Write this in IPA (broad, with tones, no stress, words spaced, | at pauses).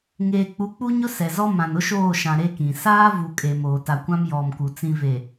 ŋeː˨k͡pu˨˦k͡pu˦ɲʊ˦ sɛ˨zɔ˦ mã˨nʊ˦ ʃoː˦˨ʃã˨ ɾe˦kĩ˨ saː˦ vu˨ kʼe˨ moː˨ta˨kʷã˦m jɔ˨mku˨ t͡sĩ˨ve˨